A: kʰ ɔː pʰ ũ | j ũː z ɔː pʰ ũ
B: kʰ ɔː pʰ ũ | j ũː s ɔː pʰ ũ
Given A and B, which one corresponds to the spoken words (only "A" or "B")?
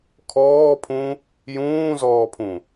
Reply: A